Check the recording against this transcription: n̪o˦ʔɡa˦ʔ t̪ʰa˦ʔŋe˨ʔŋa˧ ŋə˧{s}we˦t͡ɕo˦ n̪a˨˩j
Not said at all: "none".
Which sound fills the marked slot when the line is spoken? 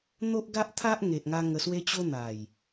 s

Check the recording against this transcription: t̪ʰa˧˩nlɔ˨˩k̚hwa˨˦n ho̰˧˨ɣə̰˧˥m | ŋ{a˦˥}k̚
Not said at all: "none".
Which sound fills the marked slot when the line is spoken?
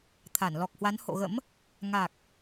a˨˩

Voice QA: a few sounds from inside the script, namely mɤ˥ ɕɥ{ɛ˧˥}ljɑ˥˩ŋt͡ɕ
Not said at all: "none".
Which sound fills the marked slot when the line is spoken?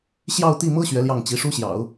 ɛ˧˥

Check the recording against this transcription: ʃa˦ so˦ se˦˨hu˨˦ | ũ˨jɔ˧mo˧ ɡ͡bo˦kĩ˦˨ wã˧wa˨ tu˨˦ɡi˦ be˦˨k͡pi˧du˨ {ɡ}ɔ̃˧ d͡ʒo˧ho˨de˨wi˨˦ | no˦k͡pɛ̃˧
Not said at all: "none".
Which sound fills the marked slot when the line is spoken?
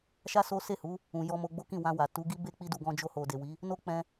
ɡ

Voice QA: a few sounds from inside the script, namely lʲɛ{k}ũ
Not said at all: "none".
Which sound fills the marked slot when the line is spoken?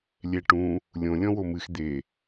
ʈ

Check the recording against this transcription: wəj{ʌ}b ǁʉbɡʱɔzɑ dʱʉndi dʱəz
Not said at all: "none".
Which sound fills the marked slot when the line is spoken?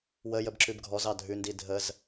ə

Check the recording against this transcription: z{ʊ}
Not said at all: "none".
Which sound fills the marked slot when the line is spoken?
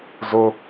ʊ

